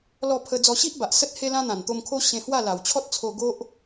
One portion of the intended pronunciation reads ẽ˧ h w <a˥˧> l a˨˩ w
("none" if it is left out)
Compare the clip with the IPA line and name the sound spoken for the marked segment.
a˥˧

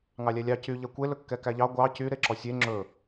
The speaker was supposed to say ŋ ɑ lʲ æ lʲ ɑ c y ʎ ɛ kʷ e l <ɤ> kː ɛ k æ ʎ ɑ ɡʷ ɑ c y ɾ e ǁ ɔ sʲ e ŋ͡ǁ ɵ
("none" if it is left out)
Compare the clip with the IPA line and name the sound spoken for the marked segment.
ɵ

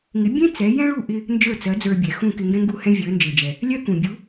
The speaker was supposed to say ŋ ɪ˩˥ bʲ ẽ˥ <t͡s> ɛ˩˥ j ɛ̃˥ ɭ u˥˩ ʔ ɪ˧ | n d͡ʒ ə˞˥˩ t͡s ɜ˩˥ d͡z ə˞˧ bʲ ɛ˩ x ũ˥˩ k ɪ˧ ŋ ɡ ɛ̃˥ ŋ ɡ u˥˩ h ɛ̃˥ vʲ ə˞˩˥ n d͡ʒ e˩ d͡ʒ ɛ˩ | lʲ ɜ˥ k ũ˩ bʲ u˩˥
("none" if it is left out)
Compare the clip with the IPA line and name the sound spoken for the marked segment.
t͡s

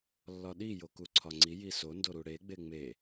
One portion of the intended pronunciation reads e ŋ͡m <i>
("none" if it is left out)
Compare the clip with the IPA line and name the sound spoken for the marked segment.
e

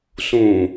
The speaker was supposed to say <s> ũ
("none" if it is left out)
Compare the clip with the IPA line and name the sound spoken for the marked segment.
s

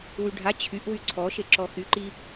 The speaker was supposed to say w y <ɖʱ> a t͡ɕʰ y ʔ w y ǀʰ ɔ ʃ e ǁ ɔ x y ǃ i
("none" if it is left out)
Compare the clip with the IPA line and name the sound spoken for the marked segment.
ɖʱ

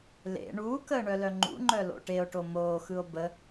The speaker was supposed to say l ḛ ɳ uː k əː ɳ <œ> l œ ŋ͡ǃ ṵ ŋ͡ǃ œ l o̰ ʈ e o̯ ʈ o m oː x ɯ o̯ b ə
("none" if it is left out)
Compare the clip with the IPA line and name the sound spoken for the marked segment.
œ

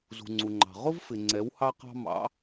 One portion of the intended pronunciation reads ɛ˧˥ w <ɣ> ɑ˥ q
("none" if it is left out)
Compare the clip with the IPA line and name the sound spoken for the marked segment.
h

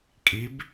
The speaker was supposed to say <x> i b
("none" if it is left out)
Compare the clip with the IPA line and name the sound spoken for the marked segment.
kʼ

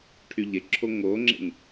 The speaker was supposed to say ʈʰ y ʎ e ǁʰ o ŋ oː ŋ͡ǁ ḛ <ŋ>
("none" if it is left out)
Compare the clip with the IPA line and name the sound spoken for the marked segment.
ŋ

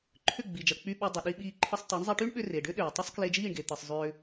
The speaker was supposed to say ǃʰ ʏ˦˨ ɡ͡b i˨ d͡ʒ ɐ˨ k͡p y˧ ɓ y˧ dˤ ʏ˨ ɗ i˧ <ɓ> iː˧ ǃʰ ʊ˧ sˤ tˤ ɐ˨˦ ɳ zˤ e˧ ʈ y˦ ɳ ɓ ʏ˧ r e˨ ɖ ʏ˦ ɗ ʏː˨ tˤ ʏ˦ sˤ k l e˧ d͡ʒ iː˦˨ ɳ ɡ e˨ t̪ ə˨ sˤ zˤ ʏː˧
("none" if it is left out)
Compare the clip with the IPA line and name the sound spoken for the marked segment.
ɓ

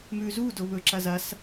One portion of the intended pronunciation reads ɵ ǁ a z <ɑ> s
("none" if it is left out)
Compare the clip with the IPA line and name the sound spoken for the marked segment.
a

